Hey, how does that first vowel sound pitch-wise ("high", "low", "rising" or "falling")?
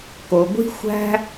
low